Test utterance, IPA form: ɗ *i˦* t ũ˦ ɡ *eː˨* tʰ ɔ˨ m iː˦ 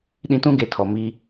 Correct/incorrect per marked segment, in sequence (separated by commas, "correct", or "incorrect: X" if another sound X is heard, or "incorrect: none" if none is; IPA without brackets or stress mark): incorrect: ĩ˦, incorrect: e˨